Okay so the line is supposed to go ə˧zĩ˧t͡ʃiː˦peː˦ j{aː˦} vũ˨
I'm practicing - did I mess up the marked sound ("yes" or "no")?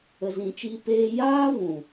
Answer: no